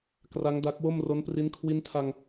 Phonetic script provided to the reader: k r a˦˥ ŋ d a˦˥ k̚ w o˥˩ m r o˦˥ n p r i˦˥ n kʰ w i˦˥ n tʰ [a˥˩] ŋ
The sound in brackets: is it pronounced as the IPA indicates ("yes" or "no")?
no